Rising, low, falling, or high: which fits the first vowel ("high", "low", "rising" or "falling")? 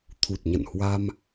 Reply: low